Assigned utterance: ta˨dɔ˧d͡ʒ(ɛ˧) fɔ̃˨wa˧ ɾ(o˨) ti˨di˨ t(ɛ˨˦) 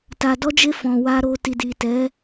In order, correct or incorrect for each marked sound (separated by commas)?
incorrect, incorrect, correct